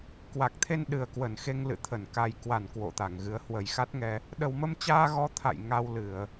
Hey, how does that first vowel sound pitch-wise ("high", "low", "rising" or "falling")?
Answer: low